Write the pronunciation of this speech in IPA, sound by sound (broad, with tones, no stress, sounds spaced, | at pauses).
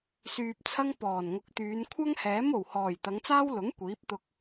s yː˧ p̚ t͡sʰ ɐ˥ ŋ p ɔː˨˩ n ŋ ʊ˨˥ k̚ t̪ yː˨˧ n kʷʰ ɐ˥ ŋ h ɛː˨˥ m o˨˩ w h ɔː˨˩ j t̪ ɐ˨˧ ŋ t͡s aː˥ w l ʊ˨˥ ŋ kʷ iː˨˥ p̚ t̪ ʊ˧ k̚